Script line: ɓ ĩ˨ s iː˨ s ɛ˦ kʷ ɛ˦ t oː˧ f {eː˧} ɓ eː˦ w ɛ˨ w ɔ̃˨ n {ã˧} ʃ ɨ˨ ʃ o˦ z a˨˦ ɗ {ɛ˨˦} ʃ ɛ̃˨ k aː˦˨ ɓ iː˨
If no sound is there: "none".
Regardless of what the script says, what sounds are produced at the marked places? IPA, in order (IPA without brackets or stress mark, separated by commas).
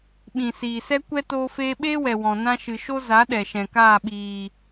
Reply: eː˧, ã˧, ɛ˨